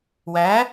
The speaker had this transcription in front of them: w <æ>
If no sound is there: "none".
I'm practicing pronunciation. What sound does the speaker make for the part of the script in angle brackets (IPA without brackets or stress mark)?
æ